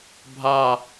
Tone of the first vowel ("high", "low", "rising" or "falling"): falling